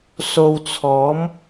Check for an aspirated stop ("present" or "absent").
present